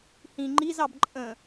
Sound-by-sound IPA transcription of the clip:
hĩ ŋ͡ǃizɑb ǃʼə̃

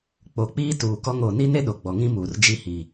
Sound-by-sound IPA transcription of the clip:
k͡po˨k͡piː˦tuː˨kɔ˦ŋ o˨ ni˦ne˦ ɗo˨ɡ͡bɔ˨ŋĩ˦muː˨r d͡ʒi˦hiː˨

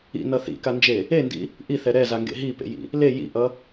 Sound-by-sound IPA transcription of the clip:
ḭnʌ θḭkand͡ʒe | endḭ | ʔiθɛ ɾɛzaŋɡḛ ɦipḛjḭ | le jḭʔʌ

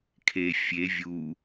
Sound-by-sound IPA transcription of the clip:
kʰe fʲe vʲu

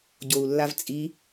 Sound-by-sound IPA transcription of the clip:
ɟou̯lːavt͡sʼi

